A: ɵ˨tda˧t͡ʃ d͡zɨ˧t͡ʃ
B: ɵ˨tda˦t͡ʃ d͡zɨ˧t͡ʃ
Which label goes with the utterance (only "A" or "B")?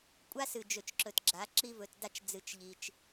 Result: A